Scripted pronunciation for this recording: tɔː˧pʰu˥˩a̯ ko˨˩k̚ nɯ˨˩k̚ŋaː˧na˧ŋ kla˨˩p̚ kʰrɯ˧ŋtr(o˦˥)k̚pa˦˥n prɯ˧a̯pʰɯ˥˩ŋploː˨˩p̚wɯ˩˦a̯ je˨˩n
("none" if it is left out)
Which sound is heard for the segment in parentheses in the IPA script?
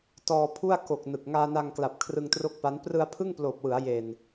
o˥˩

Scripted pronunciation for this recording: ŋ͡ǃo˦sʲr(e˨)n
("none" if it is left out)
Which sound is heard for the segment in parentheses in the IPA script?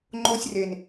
e˨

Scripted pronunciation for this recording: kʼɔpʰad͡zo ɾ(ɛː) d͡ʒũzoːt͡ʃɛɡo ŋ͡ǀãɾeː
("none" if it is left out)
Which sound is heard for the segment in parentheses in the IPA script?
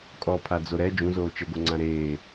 ɛ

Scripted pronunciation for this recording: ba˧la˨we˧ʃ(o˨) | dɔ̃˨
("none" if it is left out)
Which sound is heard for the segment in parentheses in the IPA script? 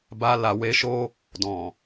o˦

